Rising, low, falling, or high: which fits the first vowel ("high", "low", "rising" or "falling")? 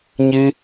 high